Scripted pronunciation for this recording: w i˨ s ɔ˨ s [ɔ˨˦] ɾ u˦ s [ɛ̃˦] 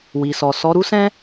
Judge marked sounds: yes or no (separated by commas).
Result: yes, yes